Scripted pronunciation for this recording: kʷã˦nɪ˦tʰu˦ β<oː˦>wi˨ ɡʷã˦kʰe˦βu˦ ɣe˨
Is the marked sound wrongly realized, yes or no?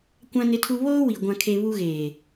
no